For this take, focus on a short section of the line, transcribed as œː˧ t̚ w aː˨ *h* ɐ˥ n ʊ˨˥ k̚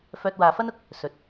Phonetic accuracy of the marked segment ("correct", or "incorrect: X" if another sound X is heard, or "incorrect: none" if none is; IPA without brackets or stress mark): incorrect: f